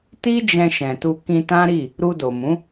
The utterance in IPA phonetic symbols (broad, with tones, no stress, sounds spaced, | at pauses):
t i˦ d͡ʒ ɛ̃˧ ʃ ɛ̃˨ t u˧ k ĩ˧ t ã˦ ɾ i˦˨ | ɾ u˧ d o˨ m ũ˨˦